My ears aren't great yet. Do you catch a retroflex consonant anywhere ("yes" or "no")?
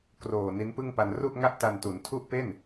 no